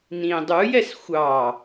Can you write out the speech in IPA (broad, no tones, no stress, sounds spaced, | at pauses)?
n ĩ dˤ u j ɛ s xʷ ɑ